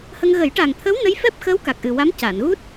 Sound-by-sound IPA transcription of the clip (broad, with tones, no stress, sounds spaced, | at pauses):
h ə˧ ŋ ɣ ə˨˩˦ j ʈ a˨˩ ŋ t̪ʰ əː˧˥ w n ə˧˥ j f ɛ˦˥ p̚ x əː˧˥ w k a˨˩ k̚ ʔ ɨ˨˩ w a˧˥ m c a˨˩˨ n ɣ u˦˥ t̚